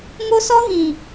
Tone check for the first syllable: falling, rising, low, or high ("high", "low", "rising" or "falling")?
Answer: high